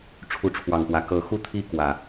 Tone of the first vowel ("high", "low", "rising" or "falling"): rising